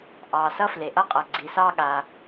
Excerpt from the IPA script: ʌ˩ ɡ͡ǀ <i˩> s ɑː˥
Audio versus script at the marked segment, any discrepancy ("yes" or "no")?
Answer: no